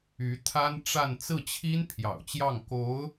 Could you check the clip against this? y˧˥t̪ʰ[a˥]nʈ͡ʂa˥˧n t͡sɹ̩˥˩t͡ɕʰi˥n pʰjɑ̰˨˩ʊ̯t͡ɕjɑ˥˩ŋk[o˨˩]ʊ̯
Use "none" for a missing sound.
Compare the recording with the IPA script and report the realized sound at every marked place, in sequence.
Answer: a˥, o˧˥

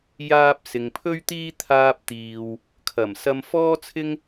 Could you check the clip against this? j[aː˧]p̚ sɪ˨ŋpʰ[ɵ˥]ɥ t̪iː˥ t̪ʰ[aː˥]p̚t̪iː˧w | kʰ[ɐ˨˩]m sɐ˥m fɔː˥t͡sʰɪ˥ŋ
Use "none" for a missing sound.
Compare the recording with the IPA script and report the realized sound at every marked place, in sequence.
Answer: aː˧, ɵ˥, aː˥, ɐ˨˩

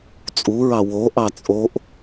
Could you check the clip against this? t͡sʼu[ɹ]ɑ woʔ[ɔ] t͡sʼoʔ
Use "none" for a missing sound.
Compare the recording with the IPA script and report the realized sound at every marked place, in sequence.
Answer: ɹ, ɑ

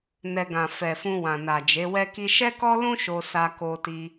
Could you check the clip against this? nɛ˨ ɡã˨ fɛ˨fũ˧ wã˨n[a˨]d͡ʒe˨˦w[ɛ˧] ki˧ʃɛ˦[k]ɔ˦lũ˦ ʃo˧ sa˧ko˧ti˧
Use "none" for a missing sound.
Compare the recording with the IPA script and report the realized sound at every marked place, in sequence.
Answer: a˨, ɛ˦, k

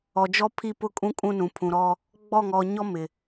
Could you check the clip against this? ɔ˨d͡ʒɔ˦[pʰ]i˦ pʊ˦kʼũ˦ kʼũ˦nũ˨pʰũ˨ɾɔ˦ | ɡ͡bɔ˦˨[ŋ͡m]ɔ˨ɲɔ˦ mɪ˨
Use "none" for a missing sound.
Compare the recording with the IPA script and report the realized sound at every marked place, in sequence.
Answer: pʰ, ŋ

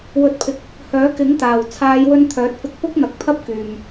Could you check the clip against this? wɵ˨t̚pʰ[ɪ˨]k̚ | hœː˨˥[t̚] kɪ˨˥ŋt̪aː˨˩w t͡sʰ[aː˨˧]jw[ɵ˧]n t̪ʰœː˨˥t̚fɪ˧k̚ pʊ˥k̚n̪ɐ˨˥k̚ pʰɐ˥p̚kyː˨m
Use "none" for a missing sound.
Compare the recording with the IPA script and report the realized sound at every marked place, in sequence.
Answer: ɪ˨, none, aː˨˧, ɵ˧

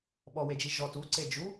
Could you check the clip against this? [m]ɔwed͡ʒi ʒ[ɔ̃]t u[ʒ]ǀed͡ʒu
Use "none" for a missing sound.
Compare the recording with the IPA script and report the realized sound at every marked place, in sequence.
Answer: ɓ, ɔ, none

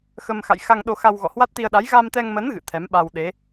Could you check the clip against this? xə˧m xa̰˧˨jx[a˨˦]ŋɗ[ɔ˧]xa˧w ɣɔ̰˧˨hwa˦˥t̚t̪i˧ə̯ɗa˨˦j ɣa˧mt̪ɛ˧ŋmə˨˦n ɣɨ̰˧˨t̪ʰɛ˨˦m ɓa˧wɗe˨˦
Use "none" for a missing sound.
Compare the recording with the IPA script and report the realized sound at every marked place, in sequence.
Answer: a˧, o˧

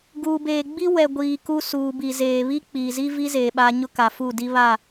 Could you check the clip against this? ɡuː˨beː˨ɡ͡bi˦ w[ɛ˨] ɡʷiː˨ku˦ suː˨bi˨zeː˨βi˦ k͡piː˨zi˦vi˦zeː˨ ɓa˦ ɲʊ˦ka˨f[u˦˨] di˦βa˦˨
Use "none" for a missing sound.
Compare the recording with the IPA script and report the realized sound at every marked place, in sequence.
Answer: ɛ˨, u˦˨

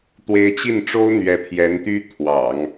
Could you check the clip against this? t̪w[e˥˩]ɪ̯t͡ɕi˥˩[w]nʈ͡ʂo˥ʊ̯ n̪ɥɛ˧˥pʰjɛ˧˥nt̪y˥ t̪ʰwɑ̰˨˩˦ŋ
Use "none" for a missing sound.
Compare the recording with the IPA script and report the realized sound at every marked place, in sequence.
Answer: e˧˥, none

